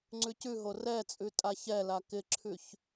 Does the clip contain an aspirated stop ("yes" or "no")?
yes